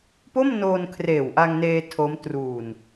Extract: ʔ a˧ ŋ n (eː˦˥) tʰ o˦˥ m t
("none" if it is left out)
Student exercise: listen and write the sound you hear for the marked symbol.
eː˧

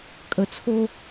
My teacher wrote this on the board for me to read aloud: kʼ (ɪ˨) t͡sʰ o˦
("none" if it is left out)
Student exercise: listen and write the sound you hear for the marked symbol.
ə˨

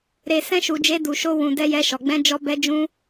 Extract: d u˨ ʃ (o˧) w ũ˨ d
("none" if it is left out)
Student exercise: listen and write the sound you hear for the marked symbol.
o˧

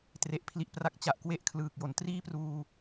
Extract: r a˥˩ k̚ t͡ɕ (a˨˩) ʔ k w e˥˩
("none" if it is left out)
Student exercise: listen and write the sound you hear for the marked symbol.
a˨˩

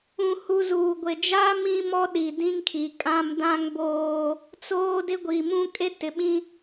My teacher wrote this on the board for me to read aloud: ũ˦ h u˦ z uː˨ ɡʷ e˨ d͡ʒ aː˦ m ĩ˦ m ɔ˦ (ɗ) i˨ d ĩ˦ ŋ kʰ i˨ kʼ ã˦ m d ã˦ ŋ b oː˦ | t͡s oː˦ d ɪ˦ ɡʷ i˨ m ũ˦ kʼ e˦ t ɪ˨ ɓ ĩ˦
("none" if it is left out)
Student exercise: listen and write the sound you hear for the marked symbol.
ɗ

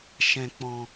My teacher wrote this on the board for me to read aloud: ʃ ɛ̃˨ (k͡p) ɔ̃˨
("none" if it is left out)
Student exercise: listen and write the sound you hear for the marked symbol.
k͡p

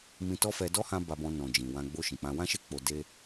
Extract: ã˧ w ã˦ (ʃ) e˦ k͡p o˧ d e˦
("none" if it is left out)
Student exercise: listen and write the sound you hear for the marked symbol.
ʃ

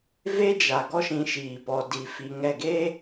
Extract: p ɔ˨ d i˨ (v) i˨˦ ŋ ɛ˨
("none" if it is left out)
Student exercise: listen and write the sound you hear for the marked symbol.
f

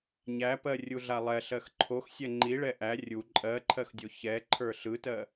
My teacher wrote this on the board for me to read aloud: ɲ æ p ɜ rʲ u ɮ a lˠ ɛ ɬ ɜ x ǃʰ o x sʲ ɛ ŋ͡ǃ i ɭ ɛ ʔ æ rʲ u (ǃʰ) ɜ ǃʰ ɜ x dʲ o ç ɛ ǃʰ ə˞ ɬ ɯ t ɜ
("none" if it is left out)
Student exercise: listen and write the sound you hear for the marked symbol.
ǃʼ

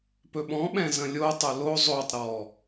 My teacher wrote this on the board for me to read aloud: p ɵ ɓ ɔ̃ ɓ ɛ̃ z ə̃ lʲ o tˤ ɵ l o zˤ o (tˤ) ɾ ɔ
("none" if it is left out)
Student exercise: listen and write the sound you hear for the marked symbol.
tˤ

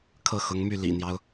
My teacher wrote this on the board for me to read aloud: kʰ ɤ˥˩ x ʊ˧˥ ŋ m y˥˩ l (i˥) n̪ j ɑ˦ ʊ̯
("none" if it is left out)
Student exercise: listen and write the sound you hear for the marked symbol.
ḭ˨˩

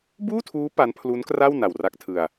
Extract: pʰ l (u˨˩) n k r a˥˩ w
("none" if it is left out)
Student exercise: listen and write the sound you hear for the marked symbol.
u˦˥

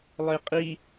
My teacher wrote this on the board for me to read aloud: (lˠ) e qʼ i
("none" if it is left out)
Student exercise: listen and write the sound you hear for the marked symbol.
lˠ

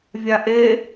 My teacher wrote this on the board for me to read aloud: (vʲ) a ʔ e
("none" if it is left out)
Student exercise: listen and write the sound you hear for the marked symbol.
vʲ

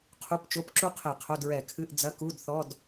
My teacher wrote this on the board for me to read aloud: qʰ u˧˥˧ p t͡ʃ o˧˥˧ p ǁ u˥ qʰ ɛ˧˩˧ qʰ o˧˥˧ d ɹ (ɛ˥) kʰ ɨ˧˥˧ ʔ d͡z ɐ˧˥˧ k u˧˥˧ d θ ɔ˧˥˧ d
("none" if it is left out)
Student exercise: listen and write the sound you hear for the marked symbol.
ɛ˧˩˧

